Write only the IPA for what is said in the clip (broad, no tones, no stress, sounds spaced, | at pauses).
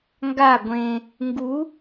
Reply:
ŋ ɡ a ɡʷ ẽ | ŋ ɡ u